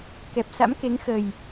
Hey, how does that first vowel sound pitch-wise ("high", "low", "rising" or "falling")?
low